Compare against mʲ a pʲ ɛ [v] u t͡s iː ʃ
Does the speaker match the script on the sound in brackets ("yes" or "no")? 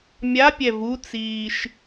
yes